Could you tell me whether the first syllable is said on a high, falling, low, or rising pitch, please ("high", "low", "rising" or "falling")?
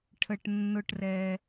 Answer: low